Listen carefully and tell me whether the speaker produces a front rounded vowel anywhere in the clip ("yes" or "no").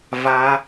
no